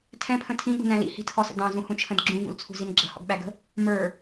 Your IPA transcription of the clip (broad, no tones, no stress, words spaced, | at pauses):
tʰɛ̃pʰə̃ tʰĩɠṳnæ̃ lḭhi̤tʰɔsə̰ dɑ̃zũhũt͡ʃʰə̃d ɡ͡ǁũvṵlt͡sʰṳzin ɡ͡ǁə̤hɔ̰ɡɓæɡə̤ | mə˞